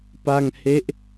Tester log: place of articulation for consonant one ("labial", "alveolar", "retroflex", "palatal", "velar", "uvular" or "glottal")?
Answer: labial